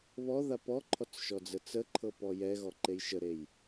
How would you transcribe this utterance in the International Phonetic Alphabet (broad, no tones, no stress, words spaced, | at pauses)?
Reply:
βɔða pɔǃʰɔt͡sʃɔd͡zə t͡səǃʰɤpɔ jɛɣɔǃej ʃəɾej